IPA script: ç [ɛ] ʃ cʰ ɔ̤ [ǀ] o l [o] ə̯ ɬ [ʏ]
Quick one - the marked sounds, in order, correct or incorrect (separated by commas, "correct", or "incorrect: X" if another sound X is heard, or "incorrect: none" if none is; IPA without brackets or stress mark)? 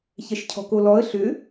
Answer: correct, incorrect: k, incorrect: ɔ, correct